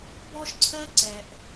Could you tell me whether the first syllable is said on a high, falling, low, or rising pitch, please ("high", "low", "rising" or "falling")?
high